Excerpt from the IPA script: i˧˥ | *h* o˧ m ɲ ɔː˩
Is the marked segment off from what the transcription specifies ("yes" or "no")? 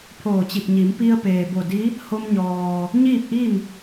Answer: no